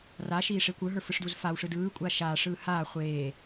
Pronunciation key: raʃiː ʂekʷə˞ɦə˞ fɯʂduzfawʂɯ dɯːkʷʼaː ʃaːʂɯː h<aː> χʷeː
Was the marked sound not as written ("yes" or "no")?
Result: no